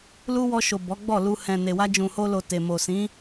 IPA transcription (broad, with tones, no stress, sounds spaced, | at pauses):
l u˦ w ɔ˧ ʃ o˨ b ɔ˨˦ ɡ͡b ɔ˦˨ l u˧ h ɛ̃˨ n e˨ w a˧ d͡ʒ ũ˨ h o˧ l o˨ t e˨ m o˨ s ĩ˨˦